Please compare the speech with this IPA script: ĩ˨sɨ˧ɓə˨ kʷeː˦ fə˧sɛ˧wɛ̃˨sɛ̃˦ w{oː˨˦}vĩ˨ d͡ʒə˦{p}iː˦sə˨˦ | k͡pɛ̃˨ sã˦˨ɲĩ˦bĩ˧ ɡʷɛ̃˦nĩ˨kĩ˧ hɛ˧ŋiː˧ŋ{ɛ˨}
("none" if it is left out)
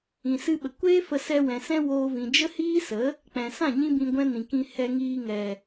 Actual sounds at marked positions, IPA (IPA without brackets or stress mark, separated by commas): oː˧, h, ɛ˨